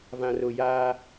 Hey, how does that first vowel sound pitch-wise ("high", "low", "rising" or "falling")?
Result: low